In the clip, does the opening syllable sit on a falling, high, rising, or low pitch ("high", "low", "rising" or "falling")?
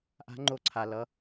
rising